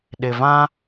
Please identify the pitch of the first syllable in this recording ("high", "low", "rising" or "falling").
low